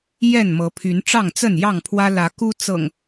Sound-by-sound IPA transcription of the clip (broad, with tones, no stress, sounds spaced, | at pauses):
j ɛ˥˨ n m ɤ˨˦ pʰ y˨˦ n ʈ͡ʂ ɑ˥˨ ŋ t͡s ə˥˨ n j ɑ˥˨ ŋ pʰ w ä˦ l ä˨˦ k u˦ t͡s ɤ̰˨˩ ŋ